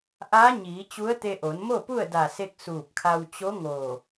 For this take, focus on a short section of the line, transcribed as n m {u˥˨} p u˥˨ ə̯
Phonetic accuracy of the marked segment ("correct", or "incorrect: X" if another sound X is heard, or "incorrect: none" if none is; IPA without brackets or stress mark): incorrect: o˥˨